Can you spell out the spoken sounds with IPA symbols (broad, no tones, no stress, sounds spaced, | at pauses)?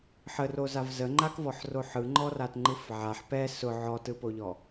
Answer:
ħ ə r o z a v z ə ŋ͡ǃ a k v ɔ ħ r o ħ ɯ ŋ͡ǃ ɔ r a t ŋ͡ǃ ɯ f ʕ a ħ p ɛ s ʊ ʕ ɔ t ɯ p o ʎ ɔ